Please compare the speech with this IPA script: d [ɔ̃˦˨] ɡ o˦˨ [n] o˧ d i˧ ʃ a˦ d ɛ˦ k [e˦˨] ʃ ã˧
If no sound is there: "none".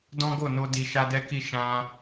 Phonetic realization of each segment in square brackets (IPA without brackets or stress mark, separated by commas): ɔ̃˦, n, i˦˨